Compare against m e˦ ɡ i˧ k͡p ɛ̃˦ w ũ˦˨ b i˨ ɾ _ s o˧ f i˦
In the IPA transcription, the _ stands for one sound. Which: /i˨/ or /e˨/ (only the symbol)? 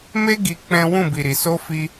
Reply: i˨